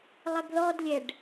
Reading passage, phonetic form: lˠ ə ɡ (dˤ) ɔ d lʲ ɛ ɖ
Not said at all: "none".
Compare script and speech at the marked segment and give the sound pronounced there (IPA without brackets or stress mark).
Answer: ð